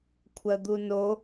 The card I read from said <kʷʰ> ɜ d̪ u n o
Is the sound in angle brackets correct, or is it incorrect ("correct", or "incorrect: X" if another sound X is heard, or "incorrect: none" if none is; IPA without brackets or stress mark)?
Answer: correct